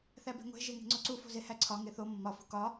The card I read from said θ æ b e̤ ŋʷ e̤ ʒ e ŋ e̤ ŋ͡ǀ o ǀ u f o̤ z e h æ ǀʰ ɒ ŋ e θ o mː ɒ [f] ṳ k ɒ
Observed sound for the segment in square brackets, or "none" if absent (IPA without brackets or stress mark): f